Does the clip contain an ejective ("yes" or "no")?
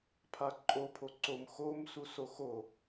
yes